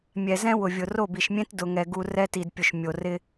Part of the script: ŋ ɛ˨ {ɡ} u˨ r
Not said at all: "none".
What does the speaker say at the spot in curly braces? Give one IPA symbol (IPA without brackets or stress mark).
ɡ